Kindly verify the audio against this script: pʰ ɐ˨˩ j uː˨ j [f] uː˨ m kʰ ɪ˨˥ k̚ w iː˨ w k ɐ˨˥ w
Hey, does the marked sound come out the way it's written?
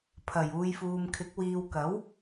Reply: yes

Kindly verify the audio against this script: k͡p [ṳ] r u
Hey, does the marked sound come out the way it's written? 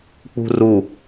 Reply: yes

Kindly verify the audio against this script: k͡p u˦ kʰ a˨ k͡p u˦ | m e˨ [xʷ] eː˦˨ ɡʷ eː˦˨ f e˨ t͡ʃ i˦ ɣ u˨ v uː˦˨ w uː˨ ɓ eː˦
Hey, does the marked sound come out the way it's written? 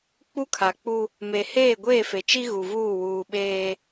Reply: no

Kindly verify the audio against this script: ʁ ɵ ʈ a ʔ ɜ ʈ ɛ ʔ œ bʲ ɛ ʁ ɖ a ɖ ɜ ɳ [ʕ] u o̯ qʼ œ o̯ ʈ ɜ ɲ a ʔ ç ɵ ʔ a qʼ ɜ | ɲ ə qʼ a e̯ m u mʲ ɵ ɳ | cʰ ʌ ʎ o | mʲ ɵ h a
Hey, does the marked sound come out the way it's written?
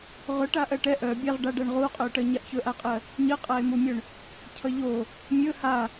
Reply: no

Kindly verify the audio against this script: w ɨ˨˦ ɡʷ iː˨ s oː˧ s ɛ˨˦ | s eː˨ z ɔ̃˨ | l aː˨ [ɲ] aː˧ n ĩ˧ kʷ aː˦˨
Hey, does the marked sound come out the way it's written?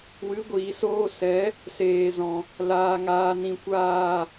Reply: no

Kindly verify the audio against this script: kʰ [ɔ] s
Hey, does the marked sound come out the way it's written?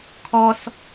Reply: yes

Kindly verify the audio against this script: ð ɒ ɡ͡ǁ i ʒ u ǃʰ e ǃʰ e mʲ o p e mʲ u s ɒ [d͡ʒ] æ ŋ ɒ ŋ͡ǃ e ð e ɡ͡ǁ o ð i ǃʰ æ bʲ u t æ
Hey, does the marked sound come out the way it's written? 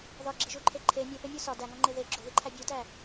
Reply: no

